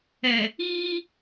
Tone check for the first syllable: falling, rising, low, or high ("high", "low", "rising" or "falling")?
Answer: low